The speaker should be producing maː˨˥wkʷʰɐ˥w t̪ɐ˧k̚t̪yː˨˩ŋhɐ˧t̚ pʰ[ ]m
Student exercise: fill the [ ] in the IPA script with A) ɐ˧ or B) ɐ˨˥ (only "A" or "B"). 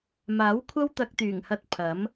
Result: B